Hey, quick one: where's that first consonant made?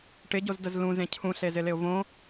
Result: retroflex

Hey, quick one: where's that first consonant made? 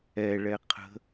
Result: retroflex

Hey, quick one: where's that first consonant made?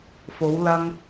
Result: lips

